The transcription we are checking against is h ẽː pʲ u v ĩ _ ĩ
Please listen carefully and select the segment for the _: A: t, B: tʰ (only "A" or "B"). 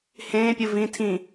B